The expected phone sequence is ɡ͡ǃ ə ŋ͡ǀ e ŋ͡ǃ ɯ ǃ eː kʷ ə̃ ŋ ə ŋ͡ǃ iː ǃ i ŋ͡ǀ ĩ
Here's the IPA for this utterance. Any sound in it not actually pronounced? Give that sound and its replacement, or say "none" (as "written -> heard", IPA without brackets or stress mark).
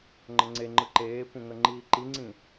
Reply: ɡ͡ǃ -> ŋ͡ǃ